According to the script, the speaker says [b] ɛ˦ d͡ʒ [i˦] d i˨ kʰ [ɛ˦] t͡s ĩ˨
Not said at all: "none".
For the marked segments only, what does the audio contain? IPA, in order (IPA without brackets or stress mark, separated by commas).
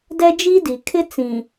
d, i˦, ɪ˦